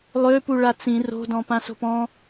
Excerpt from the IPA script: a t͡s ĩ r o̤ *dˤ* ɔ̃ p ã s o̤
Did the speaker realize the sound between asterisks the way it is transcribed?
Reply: no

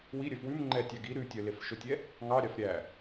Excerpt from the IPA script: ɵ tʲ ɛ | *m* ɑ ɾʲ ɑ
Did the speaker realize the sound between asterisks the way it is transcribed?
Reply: no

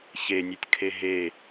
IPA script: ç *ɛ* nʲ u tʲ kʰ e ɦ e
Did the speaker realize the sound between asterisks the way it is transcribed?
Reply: no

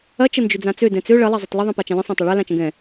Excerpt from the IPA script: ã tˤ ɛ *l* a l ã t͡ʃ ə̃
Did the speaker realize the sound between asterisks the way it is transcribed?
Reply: no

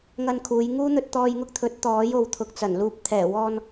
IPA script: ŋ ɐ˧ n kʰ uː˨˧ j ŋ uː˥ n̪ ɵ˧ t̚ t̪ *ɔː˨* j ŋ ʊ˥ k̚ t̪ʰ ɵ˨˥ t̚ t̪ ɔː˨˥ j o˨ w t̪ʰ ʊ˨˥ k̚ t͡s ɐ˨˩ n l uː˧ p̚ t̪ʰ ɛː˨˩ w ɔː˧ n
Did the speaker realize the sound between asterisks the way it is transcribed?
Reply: no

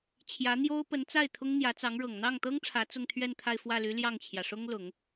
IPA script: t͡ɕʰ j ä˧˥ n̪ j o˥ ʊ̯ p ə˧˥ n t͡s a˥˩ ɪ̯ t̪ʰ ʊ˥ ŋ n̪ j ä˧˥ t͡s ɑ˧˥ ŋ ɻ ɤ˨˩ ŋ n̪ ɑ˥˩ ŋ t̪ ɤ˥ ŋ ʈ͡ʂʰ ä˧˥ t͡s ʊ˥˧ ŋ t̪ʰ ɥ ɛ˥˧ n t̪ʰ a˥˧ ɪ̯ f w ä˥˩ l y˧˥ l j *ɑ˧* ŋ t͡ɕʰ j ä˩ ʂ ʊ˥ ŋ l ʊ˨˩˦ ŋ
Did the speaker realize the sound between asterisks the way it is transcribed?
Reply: no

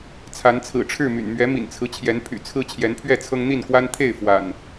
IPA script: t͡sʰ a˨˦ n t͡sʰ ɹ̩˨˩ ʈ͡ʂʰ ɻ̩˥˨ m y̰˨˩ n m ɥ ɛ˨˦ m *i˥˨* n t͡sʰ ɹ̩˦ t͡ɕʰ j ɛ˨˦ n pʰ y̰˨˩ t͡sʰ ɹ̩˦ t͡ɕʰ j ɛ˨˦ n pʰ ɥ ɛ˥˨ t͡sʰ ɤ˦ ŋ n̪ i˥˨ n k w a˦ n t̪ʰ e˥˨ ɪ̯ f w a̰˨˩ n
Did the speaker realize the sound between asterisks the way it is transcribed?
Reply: no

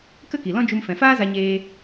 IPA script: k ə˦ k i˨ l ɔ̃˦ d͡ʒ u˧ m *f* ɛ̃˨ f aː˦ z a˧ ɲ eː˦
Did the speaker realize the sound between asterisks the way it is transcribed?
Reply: yes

